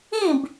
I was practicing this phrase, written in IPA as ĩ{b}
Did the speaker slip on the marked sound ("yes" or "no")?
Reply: no